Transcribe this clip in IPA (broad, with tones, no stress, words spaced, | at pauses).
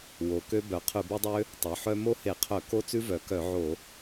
wo˩˧kø˦˥bœ˩˧ qʰʉ˧˩˧be˦˥dˤø˦˥ | tˤo˩˧ħœ˦˥ mo˦˥he˧˩˧qʰœ˧˩˧ ko˦˥t͡sʉ˦˥vœ˩˧kœ˧˩˧ ʕo˧˩˧